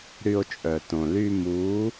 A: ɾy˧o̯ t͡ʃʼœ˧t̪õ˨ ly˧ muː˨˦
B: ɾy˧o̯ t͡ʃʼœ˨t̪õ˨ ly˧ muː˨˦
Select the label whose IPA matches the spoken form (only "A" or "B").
B